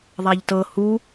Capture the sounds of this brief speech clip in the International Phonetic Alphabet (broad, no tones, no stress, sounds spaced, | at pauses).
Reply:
ðˤ a ʎ t ɤ h u